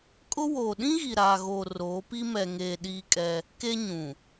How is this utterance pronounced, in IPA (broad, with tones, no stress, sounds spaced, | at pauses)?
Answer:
kʼ ʊ˦ w oː˨ ɗ ĩ˦ ɣ i˨ ɾ aː˨ ɣ oː˨ r oː˨˦ p i˦ m ɛ˨ ŋ eː˨ ɗ iː˦ kʼ ɛ˦ | k e˦ ɲ ũ˨